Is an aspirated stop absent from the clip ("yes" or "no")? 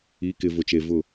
yes